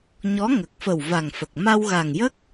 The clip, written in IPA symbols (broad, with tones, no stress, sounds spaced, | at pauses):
ɲ ɔ˧˥ ŋ ə˨˩ k̚ f ə˨˩ w v a˨˩ ŋ f ə˨˩ k̚ m a˧ w ɣ a˨˩ ŋ j ə˦˥ k̚